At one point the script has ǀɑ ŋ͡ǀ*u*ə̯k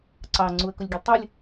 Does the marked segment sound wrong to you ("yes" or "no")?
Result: no